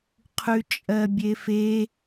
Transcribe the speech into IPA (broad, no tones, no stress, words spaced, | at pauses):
qʰʉt͡ʃʼɜbʲefe